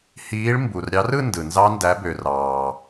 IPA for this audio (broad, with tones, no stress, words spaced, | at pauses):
hiː˨˦ɭ mbu˩rɾʲɑ˨˦rɯ˥˧ ndɯ˩nzɑ˦˥ ndæ˨˦bø˩ rɑː˩